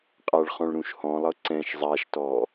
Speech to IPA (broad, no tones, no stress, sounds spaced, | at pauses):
qʼ a ɭ χ ɔ̃ ɭ ɾ ũ ʃ h ɔ̃ lˠ ɤ ǀ ɛ̃ ʃ zˤ a ʃ t ɔ